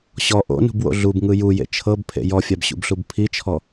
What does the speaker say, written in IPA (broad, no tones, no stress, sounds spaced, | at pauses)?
ɕ ɔ ʔ o̰ n ṳ b w o̰ ɮ u b ŋ ɯ j u j ḛ t͡ʃʰ ɤ b pʰ ḛ j ɔ fʲ a b ɕ ṵ b ɬ u b pʰ i t͡ʃʰ ɔ